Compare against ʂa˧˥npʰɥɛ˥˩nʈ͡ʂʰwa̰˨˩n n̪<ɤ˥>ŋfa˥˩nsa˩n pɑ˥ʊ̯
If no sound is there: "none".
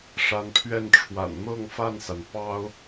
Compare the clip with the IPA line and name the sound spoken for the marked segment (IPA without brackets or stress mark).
ɤ˥˧